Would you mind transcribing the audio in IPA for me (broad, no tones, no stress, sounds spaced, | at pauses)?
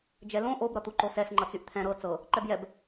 d͡ʒ ɛ l õ ʔ o b ɾ ʌ t̪ u ǃ o s ɛ s ŋ͡ǃ ʌ t͡s y ʔ t̪ʰ ɛ̃ ɾ ɤ t͡s ɤ | ǃ ɛ b j ɛ b